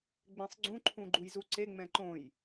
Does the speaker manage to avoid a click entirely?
no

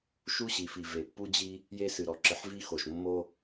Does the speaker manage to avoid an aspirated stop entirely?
yes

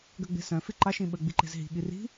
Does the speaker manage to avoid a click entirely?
no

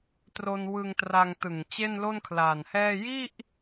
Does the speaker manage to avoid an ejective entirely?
yes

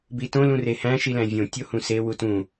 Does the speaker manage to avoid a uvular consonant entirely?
yes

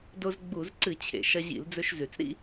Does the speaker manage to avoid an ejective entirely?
yes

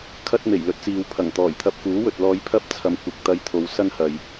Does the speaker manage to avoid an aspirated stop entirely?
no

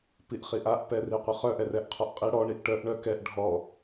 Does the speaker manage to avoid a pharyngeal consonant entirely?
yes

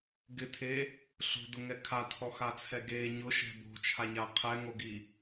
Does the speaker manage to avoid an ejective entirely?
yes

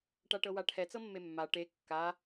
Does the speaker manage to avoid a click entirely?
yes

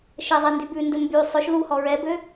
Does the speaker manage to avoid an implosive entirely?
yes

